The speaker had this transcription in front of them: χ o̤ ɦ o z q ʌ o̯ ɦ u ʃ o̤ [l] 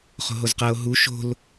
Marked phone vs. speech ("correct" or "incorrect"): correct